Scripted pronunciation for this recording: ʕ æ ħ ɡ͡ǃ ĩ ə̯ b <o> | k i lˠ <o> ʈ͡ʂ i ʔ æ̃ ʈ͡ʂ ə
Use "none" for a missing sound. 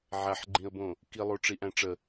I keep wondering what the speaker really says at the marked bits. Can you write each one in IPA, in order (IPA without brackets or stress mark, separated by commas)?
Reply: õ, o